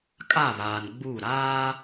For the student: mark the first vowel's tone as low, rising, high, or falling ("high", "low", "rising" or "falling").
falling